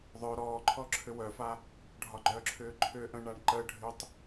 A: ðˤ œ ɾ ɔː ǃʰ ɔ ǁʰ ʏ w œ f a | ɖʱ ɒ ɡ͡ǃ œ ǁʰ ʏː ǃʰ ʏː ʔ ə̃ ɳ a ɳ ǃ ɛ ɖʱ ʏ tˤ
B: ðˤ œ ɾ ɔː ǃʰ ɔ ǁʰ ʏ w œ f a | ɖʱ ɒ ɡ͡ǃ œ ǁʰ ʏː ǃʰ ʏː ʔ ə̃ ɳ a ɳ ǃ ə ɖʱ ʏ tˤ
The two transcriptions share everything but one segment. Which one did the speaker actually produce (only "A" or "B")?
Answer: B